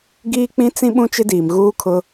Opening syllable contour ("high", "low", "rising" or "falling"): high